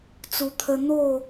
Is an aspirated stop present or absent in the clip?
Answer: present